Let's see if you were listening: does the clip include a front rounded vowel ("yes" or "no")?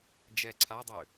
yes